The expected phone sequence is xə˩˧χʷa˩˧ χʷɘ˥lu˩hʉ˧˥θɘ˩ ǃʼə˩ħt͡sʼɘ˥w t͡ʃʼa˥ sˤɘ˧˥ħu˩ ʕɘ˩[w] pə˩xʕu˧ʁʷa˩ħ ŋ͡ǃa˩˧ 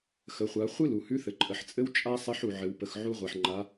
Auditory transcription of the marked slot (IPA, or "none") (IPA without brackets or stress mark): w